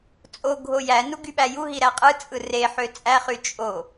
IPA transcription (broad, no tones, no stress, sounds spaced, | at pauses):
t͡sʼ o ɡʱ o j æ n u ɡ y ɓ æ j u ɦ i ɾ æ qʼ ɯ t͡sʼ ɯ r e ħ ø t͡sʼ æ χ y t͡ʃʼ o